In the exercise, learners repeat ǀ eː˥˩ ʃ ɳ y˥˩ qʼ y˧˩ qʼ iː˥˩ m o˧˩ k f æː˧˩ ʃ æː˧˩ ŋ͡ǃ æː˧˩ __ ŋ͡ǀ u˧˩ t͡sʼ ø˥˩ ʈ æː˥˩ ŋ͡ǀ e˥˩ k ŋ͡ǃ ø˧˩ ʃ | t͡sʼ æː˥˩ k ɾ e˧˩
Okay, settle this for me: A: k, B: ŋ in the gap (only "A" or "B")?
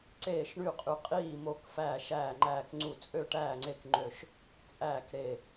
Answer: A